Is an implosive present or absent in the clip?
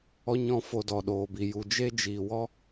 present